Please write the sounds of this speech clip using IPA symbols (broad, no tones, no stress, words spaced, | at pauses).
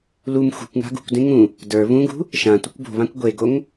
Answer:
lum xṳkʷŋa̤ ɡṳkʷdẽ ŋũ | də˞ βũɡṳ | ʃãtʷɘkʷ bo̤βãkʷ ɡʷeɡoŋ